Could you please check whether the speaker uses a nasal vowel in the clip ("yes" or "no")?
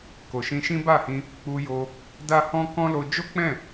yes